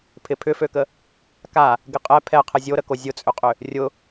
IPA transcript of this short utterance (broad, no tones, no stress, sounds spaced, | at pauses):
pʰ ɪ pʰ ʏ f ø k ə | k a | ɡ ɪ qʼ ɛ pʰ ɛ qʰ ɪ zʲ o ɾ ə k o zʲ ʊ t͡sʼ ʏ qʼ ʏ | rʲ ʊ